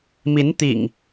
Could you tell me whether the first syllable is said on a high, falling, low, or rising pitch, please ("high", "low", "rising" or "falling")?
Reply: rising